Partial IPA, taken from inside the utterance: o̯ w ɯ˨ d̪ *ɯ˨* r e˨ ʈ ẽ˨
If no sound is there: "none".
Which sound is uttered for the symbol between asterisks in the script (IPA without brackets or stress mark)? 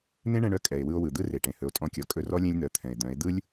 ɯ˦